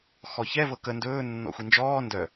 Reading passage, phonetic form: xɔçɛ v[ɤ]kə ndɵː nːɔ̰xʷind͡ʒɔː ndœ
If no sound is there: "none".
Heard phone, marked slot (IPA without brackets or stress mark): ɤ